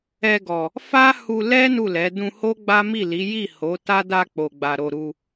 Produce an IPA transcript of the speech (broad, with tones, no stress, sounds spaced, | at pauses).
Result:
ɛ˧ ɡ ɔ˨ | f a˦ h u˧ l ɛ˦ n u˦˨ l ɛ˨˦ d ũ˧ h o˦ ɡ͡b a˦ m i˦˨ l i˨˦ j i˦˨ h o˨˦ t a˦ d a˧ k͡p o˨ ɡ͡b a˨ ɾ o˧ ɾ u˧